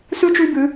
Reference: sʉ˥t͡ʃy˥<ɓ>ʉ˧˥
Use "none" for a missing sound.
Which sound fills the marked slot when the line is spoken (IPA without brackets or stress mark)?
b